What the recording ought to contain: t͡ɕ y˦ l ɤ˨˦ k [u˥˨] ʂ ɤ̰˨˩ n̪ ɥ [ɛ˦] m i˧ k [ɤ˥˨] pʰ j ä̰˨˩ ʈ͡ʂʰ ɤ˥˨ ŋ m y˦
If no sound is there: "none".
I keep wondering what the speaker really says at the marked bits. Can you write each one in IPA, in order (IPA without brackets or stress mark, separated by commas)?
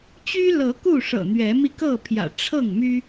u˥˨, ɛ˨˦, ɤ˥˨